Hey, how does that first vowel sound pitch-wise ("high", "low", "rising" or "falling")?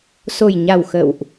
low